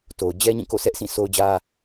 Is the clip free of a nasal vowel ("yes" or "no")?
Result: no